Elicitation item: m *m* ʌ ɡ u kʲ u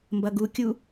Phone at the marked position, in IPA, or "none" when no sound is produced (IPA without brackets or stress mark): b